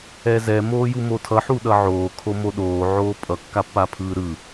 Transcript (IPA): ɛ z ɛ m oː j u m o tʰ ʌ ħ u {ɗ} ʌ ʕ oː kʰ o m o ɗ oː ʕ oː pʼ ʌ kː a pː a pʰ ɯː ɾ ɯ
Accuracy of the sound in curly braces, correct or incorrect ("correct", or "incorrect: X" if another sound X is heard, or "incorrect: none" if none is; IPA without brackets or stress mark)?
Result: correct